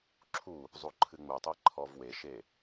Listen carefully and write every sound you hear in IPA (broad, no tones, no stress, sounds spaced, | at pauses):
ǁʰ u | zˤ u ǃʰ ɨ ŋ͡m u tˤ ɛ ǃʰ ɔ v w e ʃ e